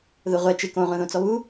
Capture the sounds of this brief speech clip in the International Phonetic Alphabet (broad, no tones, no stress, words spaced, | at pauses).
ðʊ ʁʷɛ t͡ʃɪ kõʁʷɛ̃ðõt͡sɔ βu